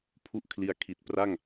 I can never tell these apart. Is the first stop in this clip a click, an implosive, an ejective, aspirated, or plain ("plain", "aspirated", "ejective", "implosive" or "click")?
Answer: aspirated